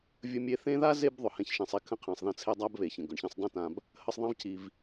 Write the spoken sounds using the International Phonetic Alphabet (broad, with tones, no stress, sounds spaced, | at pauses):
vʲ ə˦ mʲ e˦ θ ẽ˥ ð a˥ z e˦ b ðˤ ʊ˨ h ɛ̃˦ ç ʃ ɛ̃˨ sˤ i˦ kʰ ə̃˥ qʰ ɛ̃˨ sˤ ð ə̃˦ t͡sʰ e˦ dˤ a˥ b β e˨ ç ə̃˩ ɡ ʊ˩ ɳ ç ĩ˨ sˤ dˤ ẽ˦ t ã˨ b | h ə˦ sˤ ðˤ ã˥ v cʰ i˨ v